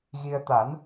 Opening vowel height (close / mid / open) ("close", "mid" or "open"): close